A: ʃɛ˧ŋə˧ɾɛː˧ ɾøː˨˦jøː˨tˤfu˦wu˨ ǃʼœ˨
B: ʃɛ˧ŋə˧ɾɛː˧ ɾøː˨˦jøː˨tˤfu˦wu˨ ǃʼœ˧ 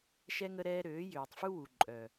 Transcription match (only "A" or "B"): A